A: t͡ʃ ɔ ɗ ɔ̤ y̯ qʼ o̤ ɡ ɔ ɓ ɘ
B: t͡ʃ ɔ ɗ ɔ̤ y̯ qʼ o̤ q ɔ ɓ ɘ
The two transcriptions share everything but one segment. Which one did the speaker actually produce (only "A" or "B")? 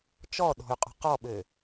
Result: B